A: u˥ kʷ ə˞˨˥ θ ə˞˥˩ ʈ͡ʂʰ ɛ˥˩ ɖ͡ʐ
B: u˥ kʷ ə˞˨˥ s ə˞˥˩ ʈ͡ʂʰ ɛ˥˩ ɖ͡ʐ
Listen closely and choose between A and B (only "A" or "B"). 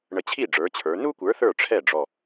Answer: A